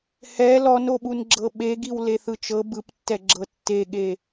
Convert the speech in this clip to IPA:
h ɛ l ɔ n o ɓ u n ɡ͡ǁ ɤ ɓ e ɡ i w l e θ ɯ t͡ʃ ɤ b ɯ p tː ɛ ɡ͡ǁ ɤ tː e ɠ e

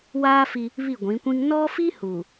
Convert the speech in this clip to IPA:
w aː˦ f i˦ | β i˦˨ ɡʷ ĩ˨˦ kʷ ĩ˦ ŋ n ɔ˦ f i˦ h uː˨

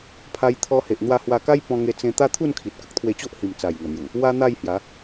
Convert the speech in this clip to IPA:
pʰ a˧ j t̪ʰ ɔ˧ h e˨ ʔ n̪ w a˧ h w a˧ k a˦ j p ɔ̃˧ ŋ e˧ t͡s ẽ˧ t̪ a˦ t̪ʰ u˥˧ n kʰ i˨ t̚ k ə˦ k̚ t̪ʰ w e˧ t͡ɕ o˦ ʔ h i˨˩ m t͡s a˨˩ j ŋ ə˨˩ n̪ j u˨˩ | w a˦ n̪ a˥˧ j h j a˨˦

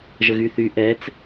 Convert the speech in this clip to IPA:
ʒ ə ɣ y θ y ʔ ɛ t͡s

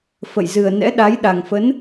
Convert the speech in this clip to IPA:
f ə̰˧˨ j z ɨ˨˩ ə̯ n ɛ̰˧˥ ɗ a˨˦ j ɗ a˨˩ ŋ f ə˨˦ n

